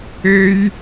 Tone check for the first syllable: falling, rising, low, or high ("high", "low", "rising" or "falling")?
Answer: high